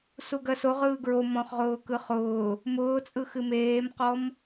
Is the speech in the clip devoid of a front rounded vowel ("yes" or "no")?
yes